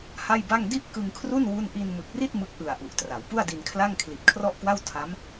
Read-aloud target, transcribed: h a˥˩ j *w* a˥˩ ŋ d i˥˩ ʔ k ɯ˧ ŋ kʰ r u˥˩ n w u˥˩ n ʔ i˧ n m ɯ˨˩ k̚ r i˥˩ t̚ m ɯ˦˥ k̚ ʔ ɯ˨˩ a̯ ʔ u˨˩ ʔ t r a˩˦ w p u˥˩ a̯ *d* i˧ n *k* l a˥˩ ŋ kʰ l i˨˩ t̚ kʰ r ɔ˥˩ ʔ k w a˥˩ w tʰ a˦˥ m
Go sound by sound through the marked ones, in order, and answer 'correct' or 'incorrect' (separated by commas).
incorrect, correct, incorrect